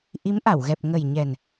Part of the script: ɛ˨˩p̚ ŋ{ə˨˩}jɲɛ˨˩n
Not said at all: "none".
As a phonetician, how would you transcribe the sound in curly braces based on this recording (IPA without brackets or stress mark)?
ə˨˩